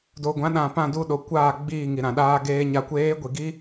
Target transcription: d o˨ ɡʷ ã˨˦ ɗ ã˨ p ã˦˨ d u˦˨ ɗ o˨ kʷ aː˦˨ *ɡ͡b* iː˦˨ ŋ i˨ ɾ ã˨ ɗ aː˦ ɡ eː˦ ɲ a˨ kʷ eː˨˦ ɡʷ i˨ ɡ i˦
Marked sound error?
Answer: no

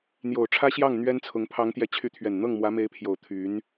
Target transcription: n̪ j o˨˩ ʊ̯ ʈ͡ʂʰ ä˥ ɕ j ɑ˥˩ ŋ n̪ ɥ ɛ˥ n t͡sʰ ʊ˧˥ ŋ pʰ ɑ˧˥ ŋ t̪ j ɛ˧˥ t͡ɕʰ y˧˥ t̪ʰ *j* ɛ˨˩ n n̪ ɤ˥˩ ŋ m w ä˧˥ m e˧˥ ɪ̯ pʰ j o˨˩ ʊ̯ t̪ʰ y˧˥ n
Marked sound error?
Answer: yes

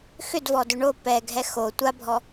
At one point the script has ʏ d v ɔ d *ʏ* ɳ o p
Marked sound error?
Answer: no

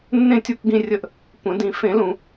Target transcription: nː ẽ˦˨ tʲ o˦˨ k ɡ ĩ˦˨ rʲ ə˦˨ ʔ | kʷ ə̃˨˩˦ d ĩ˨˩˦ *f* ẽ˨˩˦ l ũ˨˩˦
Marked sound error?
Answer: no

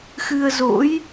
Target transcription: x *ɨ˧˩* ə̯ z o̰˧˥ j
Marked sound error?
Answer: yes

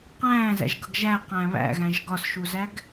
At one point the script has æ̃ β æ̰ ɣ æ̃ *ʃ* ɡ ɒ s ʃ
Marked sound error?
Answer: yes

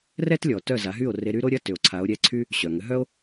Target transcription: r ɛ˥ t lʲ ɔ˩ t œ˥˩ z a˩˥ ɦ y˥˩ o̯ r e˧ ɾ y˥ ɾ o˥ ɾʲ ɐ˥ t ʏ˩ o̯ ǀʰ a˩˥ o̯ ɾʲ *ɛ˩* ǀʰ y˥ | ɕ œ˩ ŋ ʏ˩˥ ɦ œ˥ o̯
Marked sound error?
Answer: yes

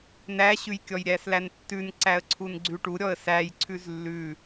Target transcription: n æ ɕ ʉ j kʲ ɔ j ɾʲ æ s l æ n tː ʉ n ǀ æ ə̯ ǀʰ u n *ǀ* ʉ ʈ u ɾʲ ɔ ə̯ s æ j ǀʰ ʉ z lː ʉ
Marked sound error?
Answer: yes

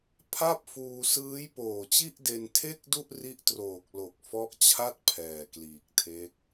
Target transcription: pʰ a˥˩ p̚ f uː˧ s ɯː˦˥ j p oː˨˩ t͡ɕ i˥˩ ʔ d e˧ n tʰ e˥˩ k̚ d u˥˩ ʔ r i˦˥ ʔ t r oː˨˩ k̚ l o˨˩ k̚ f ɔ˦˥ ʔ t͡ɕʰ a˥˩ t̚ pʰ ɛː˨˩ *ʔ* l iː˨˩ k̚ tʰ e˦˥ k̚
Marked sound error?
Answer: yes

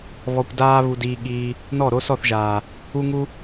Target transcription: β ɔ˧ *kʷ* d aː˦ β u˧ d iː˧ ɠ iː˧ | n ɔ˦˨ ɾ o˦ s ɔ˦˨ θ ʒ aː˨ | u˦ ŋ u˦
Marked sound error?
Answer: no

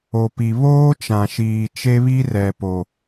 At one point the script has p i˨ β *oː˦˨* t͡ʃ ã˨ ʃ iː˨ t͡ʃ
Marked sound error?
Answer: yes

